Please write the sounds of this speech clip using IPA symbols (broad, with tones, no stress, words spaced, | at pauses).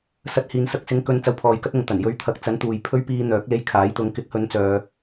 sɐ˧t̚ hiː˨nsɐ˧k̚sɪ˨˥ŋkɵ˨˧n t͡sɐ˨wpʰɔː˨jkɐ˧t̚ ʊ˨ŋ t̪ɐ˨˩njɵ˨˧ɥt̪ʰɐ˨˥k̚ t͡sɐ˨˥nt̪uː˨j pʰɵ˨˧ɥpiː˨ n̪œː˨˥k̚le˧jkʰaː˨˥jt̪ʊ˨˧ŋ kɪ˨˥k̚hɵ˨˧nt͡sœː˨